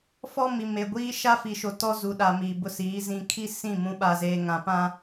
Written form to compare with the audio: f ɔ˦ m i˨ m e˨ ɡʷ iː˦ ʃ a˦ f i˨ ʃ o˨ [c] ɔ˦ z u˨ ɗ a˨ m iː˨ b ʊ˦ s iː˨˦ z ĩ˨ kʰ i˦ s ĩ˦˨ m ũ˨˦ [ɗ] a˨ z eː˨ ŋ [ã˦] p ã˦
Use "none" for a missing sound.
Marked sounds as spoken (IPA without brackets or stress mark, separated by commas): t, ɓ, ã˨